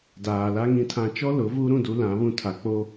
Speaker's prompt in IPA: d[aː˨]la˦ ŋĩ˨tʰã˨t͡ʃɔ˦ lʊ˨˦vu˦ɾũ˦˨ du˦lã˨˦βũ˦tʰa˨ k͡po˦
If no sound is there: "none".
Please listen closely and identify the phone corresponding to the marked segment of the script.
aː˨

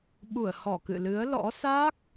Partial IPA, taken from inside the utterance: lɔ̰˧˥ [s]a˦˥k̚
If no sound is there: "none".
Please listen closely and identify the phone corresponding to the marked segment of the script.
s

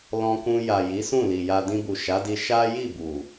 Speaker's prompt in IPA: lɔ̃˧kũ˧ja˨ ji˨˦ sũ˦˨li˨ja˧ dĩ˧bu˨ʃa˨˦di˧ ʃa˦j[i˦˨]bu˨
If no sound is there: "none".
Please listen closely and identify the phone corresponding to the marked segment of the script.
i˦˨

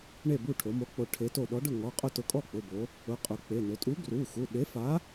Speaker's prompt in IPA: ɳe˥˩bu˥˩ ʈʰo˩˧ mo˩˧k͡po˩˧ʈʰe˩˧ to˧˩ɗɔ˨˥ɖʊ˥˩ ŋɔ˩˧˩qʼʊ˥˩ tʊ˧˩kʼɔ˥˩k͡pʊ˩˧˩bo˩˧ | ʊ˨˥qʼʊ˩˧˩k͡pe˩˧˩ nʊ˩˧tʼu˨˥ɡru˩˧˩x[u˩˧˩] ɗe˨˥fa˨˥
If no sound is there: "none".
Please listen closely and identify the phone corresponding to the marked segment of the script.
u˩˧˩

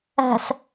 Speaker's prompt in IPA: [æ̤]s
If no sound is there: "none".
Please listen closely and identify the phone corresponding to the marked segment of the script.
æ̤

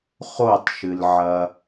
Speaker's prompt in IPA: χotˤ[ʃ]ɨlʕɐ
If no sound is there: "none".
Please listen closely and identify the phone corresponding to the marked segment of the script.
ʃ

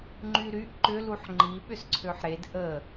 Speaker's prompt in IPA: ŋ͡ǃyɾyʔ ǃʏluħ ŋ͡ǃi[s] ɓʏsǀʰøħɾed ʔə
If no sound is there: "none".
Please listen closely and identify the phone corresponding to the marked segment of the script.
none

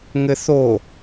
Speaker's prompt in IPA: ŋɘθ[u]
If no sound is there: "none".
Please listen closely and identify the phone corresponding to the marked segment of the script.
o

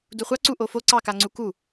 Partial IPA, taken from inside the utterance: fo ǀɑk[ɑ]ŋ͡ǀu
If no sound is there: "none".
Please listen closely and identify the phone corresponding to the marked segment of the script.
a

